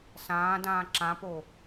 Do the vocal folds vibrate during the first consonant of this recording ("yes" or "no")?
no